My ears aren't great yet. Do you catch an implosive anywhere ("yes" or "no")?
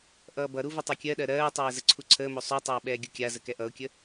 yes